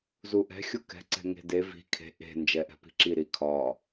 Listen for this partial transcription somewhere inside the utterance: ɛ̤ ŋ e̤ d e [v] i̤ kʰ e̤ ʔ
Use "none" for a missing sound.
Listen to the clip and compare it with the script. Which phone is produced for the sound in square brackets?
v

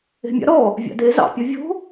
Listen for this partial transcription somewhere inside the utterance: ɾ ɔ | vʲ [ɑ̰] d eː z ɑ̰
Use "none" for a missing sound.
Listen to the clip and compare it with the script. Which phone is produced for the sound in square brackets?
ɑ̰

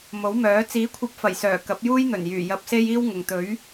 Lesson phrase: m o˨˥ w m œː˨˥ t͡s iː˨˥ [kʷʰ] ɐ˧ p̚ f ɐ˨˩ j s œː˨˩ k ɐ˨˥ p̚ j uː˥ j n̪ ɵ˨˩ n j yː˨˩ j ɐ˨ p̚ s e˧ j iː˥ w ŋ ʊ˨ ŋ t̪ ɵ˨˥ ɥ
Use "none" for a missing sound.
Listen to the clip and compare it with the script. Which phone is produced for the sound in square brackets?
kʷʰ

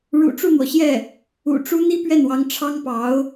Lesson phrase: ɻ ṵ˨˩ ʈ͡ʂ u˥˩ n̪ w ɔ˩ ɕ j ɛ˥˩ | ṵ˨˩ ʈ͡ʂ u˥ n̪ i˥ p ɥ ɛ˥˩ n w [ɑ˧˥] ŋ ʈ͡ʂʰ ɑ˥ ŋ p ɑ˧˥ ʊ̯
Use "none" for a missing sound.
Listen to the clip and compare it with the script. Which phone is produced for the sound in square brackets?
ɑ˧˥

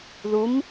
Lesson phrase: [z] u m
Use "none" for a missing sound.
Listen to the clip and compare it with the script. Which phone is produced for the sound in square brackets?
ð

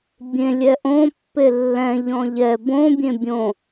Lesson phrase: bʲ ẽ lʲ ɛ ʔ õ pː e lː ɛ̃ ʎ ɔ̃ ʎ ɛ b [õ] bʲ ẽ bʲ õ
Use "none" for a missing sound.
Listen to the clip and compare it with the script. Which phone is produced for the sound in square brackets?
õ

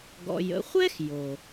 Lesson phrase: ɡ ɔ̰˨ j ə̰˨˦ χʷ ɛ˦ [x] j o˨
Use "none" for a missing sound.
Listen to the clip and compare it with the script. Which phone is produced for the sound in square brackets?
x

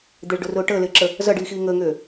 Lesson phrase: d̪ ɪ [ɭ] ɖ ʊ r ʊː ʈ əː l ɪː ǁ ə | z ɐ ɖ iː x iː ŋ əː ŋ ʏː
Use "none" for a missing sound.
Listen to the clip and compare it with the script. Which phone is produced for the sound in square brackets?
ɭ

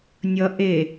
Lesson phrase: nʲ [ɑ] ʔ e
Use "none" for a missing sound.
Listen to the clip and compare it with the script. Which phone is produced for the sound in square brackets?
ʌ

